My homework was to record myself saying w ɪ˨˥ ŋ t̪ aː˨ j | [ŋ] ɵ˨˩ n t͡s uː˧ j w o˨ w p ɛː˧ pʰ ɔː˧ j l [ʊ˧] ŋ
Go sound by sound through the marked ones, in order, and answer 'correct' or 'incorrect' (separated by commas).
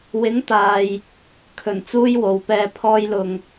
incorrect, incorrect